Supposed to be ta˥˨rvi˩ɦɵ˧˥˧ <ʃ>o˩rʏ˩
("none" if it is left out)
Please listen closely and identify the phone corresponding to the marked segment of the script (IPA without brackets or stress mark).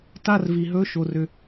ʃ